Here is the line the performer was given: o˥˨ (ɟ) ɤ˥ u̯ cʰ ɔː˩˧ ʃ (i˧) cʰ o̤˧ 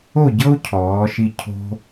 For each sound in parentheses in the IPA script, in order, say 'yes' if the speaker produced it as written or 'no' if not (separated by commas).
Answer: yes, yes